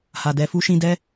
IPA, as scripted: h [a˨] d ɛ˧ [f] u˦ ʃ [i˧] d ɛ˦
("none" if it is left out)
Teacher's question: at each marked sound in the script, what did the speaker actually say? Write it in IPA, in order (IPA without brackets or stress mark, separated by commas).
a˨, f, ĩ˧